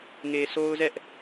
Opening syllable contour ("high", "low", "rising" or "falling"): low